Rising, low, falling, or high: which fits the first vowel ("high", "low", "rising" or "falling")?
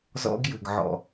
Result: high